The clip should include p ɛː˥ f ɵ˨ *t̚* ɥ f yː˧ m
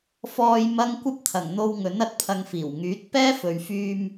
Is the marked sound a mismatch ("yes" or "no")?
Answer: yes